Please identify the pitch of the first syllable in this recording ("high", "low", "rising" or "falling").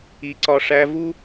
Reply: rising